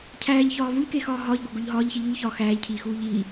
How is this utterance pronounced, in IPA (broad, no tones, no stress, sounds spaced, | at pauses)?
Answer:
cʰ æː ʎ ç ɒː v u ʎ k e x ɒː ɦ ɒː ʎ ɡʷ æ ɡ o ʎ ɦ ɒː ʎ ç i ʎ u ʎ ç ɒː x æː ʎ cʰ iː x uː ʎ iː